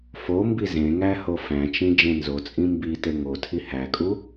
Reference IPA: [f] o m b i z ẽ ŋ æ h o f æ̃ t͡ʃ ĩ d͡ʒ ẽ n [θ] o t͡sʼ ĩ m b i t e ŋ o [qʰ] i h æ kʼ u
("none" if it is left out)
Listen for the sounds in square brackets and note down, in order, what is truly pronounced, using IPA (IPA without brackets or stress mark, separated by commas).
f, z, tʰ